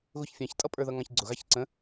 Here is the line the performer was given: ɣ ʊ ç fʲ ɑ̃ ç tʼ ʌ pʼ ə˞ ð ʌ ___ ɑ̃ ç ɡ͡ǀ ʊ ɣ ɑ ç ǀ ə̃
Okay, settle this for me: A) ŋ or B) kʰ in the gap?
A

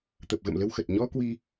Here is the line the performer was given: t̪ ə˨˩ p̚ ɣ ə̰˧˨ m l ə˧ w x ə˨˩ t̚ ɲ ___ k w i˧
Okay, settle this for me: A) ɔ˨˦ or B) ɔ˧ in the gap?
B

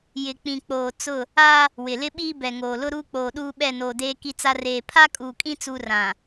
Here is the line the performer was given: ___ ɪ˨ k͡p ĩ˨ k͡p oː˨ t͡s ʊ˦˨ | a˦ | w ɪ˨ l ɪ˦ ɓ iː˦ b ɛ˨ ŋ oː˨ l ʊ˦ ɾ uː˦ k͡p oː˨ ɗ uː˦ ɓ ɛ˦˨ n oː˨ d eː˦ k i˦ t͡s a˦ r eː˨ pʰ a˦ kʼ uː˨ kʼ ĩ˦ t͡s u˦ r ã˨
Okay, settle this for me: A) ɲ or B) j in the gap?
B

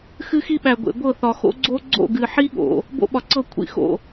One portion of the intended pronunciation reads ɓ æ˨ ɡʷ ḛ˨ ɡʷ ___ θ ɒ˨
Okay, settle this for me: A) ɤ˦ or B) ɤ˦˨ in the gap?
B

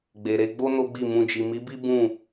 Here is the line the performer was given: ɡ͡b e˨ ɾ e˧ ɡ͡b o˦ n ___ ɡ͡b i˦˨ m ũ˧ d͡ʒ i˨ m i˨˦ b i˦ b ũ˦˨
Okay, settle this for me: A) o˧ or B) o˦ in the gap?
B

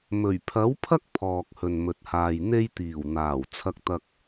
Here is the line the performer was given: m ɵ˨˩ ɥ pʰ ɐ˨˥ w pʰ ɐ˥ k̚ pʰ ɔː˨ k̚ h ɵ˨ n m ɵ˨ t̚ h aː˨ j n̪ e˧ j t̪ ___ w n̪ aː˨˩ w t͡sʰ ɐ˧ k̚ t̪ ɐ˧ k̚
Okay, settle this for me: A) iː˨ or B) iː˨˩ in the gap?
B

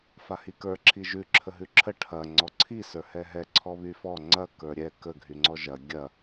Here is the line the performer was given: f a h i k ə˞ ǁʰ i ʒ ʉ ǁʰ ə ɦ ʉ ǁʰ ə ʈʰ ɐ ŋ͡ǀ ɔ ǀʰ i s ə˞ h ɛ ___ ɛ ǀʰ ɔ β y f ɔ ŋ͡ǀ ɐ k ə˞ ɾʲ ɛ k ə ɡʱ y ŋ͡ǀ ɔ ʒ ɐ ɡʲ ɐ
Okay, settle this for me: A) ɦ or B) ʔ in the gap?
A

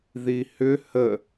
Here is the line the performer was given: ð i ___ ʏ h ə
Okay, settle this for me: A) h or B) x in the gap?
A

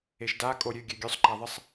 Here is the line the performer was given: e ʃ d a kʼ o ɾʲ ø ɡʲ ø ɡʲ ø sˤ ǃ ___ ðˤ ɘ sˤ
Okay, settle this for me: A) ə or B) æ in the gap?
B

